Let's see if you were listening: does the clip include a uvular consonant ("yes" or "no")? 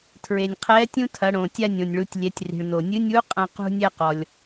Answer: yes